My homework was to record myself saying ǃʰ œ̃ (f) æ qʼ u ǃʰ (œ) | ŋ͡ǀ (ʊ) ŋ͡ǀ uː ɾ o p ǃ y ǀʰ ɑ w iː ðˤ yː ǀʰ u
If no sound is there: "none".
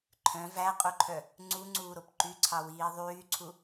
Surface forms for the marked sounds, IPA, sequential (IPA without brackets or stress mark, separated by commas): v, œ, u